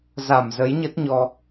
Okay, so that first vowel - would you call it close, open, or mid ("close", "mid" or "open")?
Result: open